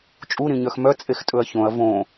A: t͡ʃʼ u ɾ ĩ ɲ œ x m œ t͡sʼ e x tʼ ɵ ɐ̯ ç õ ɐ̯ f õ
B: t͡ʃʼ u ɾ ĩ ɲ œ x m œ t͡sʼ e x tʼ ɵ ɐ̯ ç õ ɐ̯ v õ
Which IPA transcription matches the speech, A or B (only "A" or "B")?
B